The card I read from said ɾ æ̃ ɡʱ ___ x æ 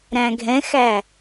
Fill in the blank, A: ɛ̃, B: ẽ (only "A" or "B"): A